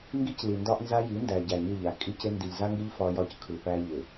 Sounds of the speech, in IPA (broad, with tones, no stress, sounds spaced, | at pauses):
ŋ ɡ i˦ c l i˨ n d ɒ˦ ʔ n z a˦ j i˨˦ n d æ˨ ɟ æ˨ ɲ ɯ˦˨ ʎ a˨ kʼ i˦ c ɪ˦ n d i˨ ʎ z a˦ ŋ ɡ ɪ˦ ʎ f ɒ˦ j ɒ˦ c kʰ ɯ˨ p æ˦ ʎ ɪ˨